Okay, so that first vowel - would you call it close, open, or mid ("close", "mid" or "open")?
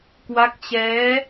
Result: open